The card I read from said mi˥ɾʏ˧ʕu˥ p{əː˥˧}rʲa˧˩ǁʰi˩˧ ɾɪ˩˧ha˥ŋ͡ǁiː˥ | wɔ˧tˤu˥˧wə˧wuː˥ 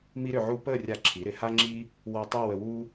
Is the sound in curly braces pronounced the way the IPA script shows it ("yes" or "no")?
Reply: yes